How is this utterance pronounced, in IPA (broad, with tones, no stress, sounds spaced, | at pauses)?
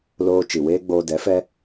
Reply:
l oː˧ t͡ʃ i˨ w eː˦ ɡ͡b oː˧ d ɛ˨˦ f ɛ˦